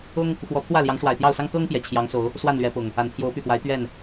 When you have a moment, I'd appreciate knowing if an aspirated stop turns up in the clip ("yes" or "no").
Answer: yes